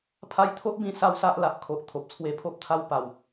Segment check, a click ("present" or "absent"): absent